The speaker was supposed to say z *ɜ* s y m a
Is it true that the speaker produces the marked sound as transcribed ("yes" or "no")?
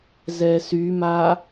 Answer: no